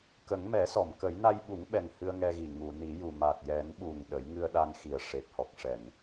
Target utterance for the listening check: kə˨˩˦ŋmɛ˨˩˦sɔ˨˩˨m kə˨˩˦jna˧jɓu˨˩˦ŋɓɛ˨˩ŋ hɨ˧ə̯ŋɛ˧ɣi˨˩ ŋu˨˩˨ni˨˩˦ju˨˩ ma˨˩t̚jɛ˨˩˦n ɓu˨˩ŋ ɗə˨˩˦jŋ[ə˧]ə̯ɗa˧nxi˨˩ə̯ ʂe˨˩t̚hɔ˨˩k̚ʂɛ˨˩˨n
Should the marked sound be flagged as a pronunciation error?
yes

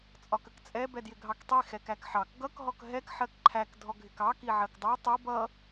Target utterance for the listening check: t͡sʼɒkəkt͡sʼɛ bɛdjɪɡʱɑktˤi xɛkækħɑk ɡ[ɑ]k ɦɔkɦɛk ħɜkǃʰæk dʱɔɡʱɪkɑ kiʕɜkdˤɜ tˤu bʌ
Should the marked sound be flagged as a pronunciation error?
yes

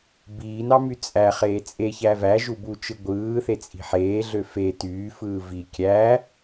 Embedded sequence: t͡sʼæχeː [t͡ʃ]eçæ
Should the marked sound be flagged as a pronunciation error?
yes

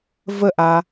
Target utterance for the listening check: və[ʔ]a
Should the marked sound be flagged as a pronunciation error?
no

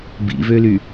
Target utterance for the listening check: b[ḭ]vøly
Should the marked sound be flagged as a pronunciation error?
no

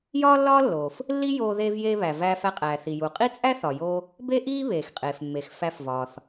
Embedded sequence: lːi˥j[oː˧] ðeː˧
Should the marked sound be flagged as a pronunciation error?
no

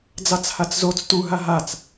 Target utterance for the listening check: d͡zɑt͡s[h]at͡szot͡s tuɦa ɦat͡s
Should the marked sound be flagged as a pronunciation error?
no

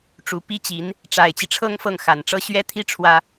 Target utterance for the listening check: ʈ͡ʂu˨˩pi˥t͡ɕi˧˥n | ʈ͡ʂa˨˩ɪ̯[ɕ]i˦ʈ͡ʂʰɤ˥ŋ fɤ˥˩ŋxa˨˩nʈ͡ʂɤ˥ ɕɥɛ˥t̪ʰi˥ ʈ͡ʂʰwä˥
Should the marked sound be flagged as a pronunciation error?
yes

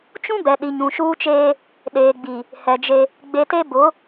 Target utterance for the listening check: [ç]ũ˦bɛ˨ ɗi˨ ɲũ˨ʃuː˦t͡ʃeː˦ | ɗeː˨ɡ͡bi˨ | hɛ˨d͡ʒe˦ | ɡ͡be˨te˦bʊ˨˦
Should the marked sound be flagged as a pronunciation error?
yes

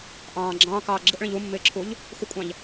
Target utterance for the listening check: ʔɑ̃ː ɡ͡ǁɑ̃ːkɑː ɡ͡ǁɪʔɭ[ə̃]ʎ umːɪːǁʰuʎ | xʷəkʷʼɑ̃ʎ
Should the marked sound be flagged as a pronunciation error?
no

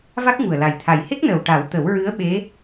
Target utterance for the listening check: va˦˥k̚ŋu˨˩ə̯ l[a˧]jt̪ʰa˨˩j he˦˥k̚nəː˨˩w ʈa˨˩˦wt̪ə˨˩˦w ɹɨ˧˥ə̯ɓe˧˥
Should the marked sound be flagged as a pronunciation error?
yes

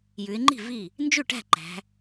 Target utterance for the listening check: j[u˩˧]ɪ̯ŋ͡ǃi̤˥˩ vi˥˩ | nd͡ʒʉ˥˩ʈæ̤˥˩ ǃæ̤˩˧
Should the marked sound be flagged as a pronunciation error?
yes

